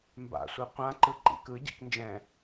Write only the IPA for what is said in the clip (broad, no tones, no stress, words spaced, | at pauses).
mba̰sʷɯ qʷãǃɯ ǃḭk ɯ ɟḭknd͡ʒɛ̃